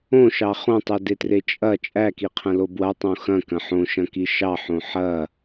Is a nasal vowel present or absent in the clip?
present